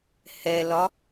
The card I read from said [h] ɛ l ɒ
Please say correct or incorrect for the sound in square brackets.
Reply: correct